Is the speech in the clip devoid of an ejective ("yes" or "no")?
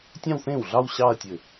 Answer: yes